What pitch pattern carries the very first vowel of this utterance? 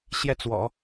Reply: falling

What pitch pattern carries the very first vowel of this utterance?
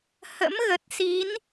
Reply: rising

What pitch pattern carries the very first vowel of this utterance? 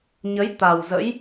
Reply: rising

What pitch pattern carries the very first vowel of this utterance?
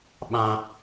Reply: low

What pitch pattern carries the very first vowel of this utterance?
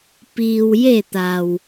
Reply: low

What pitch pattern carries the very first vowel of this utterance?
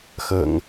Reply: low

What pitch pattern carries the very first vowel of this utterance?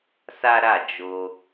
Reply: high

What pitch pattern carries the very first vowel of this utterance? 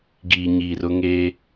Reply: low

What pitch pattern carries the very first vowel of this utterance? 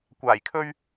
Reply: low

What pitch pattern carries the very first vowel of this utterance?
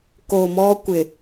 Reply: low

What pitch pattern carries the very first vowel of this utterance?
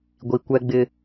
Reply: low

